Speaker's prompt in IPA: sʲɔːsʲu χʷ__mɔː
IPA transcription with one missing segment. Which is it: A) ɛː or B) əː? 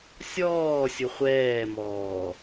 A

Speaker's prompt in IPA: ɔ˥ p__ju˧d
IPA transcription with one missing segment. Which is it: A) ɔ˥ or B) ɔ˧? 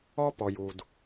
B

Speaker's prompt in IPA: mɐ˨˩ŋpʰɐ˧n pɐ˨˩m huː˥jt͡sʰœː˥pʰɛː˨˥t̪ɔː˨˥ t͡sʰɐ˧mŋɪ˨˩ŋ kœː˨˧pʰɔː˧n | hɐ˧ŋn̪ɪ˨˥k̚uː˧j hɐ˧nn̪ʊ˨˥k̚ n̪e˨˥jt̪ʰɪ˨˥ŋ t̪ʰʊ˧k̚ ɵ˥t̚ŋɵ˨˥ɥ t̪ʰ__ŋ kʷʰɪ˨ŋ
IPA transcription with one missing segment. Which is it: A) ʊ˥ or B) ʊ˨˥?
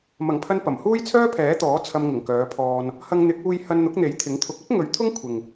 A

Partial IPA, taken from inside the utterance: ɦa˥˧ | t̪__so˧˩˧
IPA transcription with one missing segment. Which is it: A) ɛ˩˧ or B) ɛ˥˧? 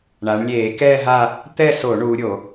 B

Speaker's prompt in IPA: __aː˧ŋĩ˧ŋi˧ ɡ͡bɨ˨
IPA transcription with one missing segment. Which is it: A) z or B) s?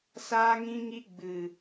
B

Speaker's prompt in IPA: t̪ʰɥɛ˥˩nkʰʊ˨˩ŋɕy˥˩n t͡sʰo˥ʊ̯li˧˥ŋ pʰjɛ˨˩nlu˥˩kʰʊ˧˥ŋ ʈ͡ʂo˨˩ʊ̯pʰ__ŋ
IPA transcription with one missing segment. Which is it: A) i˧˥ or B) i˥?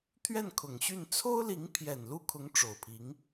A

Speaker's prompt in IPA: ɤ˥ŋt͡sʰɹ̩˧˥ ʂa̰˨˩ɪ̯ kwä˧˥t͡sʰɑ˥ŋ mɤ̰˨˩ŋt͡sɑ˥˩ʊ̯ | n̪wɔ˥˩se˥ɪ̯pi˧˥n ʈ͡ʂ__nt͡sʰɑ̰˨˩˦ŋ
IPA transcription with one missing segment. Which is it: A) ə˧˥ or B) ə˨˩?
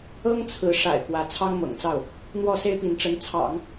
A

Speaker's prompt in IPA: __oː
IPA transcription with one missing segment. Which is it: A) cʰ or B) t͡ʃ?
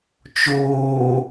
B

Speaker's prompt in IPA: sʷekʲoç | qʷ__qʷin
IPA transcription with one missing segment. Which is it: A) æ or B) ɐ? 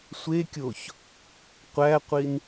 A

